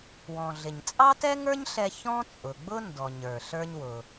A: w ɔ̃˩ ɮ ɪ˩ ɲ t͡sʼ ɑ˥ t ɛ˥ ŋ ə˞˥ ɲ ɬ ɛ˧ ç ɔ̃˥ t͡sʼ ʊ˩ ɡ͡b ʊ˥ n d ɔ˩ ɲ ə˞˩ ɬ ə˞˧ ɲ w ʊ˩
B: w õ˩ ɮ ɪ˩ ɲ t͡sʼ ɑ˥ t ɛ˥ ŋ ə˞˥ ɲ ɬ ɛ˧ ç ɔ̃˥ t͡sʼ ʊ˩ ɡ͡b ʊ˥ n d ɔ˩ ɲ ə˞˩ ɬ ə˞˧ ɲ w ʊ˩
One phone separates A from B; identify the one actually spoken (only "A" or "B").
A